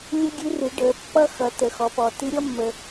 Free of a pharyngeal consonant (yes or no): yes